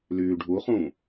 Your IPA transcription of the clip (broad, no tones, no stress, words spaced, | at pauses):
lyːɖʱuχũː